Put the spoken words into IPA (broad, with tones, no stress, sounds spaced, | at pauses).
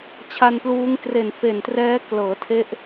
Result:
t͡ɕʰ a˧ n p l uː˦˥ ŋ k r e˨˩ n f e˨˩ n t r ɛː˦˥ k l ɤː˩˦ tʰ e˦˥ ʔ